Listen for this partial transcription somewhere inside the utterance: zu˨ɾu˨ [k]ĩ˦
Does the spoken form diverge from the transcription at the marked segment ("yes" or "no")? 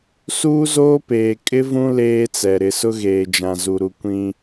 yes